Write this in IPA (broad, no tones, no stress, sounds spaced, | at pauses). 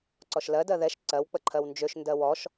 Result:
ǀ ɔ ʃ l ɜ d ɜ ð ɛ ʃ ǀ ɜ w k͡p ə ǃʰ ɜ w n d͡ʒ ø ʃ n d ɜ w ɔ ʃ